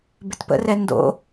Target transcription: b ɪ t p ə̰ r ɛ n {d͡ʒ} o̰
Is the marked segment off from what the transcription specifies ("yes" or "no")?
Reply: yes